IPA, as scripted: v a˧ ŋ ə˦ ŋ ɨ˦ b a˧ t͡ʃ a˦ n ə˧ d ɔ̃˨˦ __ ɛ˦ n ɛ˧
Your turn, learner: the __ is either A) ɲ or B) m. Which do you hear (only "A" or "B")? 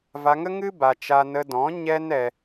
A